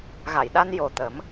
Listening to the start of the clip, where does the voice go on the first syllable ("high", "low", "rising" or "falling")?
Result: low